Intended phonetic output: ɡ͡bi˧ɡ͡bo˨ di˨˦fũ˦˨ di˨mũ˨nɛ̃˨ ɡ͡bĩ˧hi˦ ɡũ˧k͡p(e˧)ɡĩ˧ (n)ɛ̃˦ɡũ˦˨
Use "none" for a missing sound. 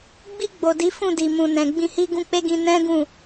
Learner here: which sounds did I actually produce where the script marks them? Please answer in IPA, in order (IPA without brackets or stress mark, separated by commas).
e˦, n